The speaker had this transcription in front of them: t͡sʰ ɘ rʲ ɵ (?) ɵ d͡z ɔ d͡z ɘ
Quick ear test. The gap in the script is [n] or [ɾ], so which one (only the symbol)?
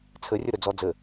ɾ